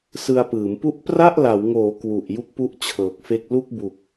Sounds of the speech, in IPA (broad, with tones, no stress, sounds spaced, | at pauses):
s ɯ˧ a̯ p ɯː˩˦ m p u˦˥ ʔ p r a˥˩ ʔ l a˩˦ w ŋ oː˩˦ k w u˨˩ ʔ j u˦˥ k̚ p u˦˥ ʔ t͡ɕʰ ɤː˨˩ k̚ f e˥˩ k̚ l u˥˩ k̚ b u˨˩ k̚